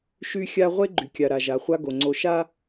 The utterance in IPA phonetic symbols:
ʃ y˦ xʲ a˦ ʁʷ e˦ ɡ͡ǃ y˨ kʲ a˨ ɾ a˨ ʒ a˨ χʷ a˦ ɡ o˨ ŋ͡ǀ o˨ ʃ a˦

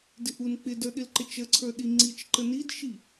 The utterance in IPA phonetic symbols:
d ɪ ʔ u n k͡p ɪ d ə˞ ɗ ɪ l ǃ ɪ t͡ʃ ə ǀʰ ə˞ ɗ i ŋ͡ǀ i t͡ʃ ǃ ə n i d ʃ i

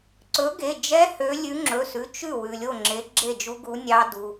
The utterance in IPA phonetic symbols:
ǀ ɵ˨˥ ɡ e˩˧˩ d͡ʒ ɛ˦˥ h ø˨˥ lʲ ʉ˨˥ ŋ͡ǁ ɵ˩˧˩ s ʉ˩˧˩ t͡ʃ ʉ˥˩ w ʉ˩ lʲ o˥˩ ŋ͡ǁ e˨˥ ɡ͡ǁ e˥˩ d͡ʒ u˦˥ ɡ u˨˥ nʲ ɑ˦˥ d u˩˧˩

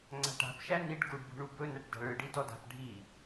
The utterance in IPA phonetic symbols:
ŋ͡ǀ a̤ ʈ a̤ p ʃ æ n i ɖ ɡ u ɖ b ṳ ɳ u b ɵ n æ ʈ d a̤ ɭ ɯ ɖ i d ɔ d a̤ p ɖʱ i

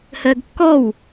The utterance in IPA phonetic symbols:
h ɜ ɡ kː ɔ w

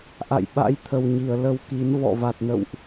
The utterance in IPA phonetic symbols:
ʔ a̰˧˨ j ɓ a̰˧˥ j t̪ʰ ə˨˩ w ɲ i˧˩ ə̯ l ə˧ w k i˨˦ n v ɔ̰˧˨ v a˨˩ t̚ n ə̰˧˨ w ʔ

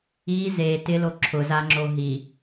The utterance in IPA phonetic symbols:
i z e t ɪ l o ǁʰ ʊ z a ŋ͡ǁ o ɦ i

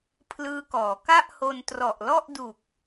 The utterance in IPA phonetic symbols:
pʰ l ɯː˦˥ k ɔː˩˦ k a˥˩ ʔ h o˧ n t r ɔ˨˩ ʔ l ɔ˥˩ ʔ d u˨˩ k̚

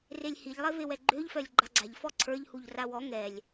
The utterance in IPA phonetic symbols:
r e lʲ h i ʎ lˠ e v e w ɛ ɡ͡ǃ ø ʎ f œ lʲ ɡ͡ǃ a ɡ͡ǀ a ʎ f ɔ ǀʰ ə˞ ʎ h u ʎ r a w ɔ ŋ ɛ lʲ

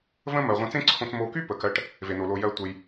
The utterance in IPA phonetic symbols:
v ə̃˦ m ɜ˩ ʁʷ ẽ˨ t͡s ẽ˦ ǀʰ õ˨ t͡s m o˨ k y˦ p ə˨ k ɜ˦ ʈ | v e˩ n o˩ l o˩ j ɜ˨ tʷ ə˩ j

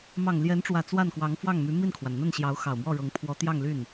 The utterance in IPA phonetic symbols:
m ɑ˨˩ ŋ l j ɛ˧˥ n ʈ͡ʂ w ä˨˩ t͡s w a˥˩ n k w ɑ˧˥ ŋ f w ɑ˥˩ ŋ m y˧˥ m i˥˩ n kʰ w a˩ n n̪ ə˥˩ n ɕ j ɑ˧˥ ʊ̯ x ɑ˨˩ ʊ̯ m w ɔ˥˩ ɻ ɤ˧˥ ŋ pʰ w ɔ˧˥ t̪ j ɑ˥˧ ŋ l y˥˩ n

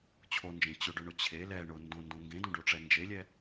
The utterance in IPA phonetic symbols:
t͡ɕʰ o n d͡ʒ ẽ t͡ɕ ʊ ɖ ʊ ɳ ʊ t͡ɕʰ e l ɛ ɳ ʊ n d õ n d õ ŋ ɡ ẽ d õ ɖ o ʈ͡ʂ ɛ n d͡ʒ e lʲ ɛ

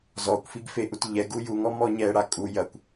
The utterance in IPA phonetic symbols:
z ɔ kʷ f i ɡ f e ʔ u t ʎ ɛ ɡ u j u ŋ ɔ m ɔ ɲ ɛ ɽ a kʼ u j ɐ kʷ

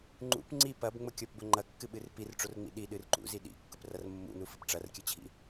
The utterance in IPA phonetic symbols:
ŋ͡ǃ ṵ p ŋ͡ǀ i p ɐ b ŋ͡m ʊ kʲ o p b ʊ ŋ͡ǃ ɐ kː ɨ ɓ ɨ r p i r ʈ͡ʂ o r ŋ͡m ḭ ɗ i ɗ ɨ r ǃ ṵ z i ɗ ḭ kː ʊ p r ɐ r mː ṵ n u f ɨ p ʈ͡ʂ ɐ r kʲ ɨ t͡ɕʰ ḭ

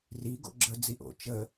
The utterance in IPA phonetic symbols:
r i ɡ o̰ ɡ͡ǁ ə d͡z i ʔ o̰ t͡ʃ ə

